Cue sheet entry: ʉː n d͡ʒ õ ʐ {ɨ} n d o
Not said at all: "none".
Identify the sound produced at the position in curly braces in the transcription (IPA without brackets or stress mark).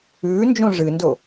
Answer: ɨ